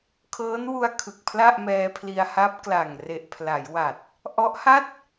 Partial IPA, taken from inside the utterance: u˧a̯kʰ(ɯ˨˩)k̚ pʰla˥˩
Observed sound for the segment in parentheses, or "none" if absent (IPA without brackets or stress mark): ɯ˨˩